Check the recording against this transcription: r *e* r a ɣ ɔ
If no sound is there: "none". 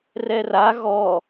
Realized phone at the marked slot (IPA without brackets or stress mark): ɛ